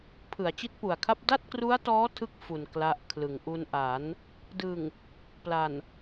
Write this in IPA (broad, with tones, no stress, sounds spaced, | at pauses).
pʰ ɯ˩˦ a̯ t͡ɕ i˦˥ t̚ p u˨˩ a̯ kʰ a˥˩ p̚ d a˥˩ t̚ k r u˦˥ a̯ t ɔː˦˥ tʰ ɯ˥˩ k̚ f u˨˩ n k l a˦˥ ʔ kʰ l ɯ˨˩ ŋ ʔ u˧ n ʔ a˩˦ n | d ɯ˨˩ ŋ | p l a˨˩ n